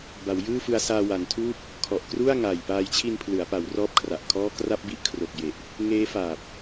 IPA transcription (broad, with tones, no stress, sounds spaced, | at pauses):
b a˩˦ w j ɯː˥˩ f ɯ˧ a̯ s aː˧ w a˩˦ n tʰ uː˥˩ p̚ | kʰ ɔ˨˩ ʔ k r u˥˩ a̯ ŋ aː˨˩ j p aː˧ j t͡ɕʰ i˧ n pʰ l ɯ˩˦ a̯ p a˩˦ w r ɔː˥˩ p̚ kʰ r a˨˩ ʔ kʰ ɔː˥˩ k r a˥˩ p̚ b i˥˩ ʔ kʰ r o˨˩ k̚ j e˨˩ ʔ | ŋ eː˦˥ f aː˨˩ p̚